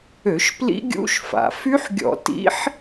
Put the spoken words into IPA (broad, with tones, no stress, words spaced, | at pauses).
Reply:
ø˧˩˧ʃ plḭ˦˥ɡʲṵ˦˥ʃ fa̰˩˧ fy˦˥ħɡʲɔ̰˧˩˧ tḭ˦˥ħ